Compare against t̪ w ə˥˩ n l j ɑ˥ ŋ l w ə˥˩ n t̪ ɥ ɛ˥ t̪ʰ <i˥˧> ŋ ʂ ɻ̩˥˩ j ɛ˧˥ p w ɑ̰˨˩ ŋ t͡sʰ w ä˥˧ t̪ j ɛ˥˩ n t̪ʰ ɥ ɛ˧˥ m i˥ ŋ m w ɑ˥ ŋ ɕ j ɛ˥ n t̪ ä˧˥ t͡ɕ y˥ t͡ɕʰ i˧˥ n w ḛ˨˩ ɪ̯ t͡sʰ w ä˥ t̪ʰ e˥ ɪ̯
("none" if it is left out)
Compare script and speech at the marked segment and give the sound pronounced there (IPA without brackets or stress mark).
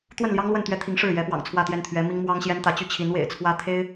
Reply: i˧˥